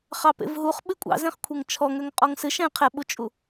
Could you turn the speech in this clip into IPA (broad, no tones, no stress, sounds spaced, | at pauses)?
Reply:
χ ɑ p ḛ v ɦ u χ ɓ ɨ kʷʼ ɑ̰ z ẽ χ kʷʰ e ŋ t͡ʃʰ ɔ ŋ ø ŋ qʼ ɔ ŋ s ɨ ʃ ɛ̃ qʰ ɛ ɓ u t͡ʃʼ u